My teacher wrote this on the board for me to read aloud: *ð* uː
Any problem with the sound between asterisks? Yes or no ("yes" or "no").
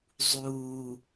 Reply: yes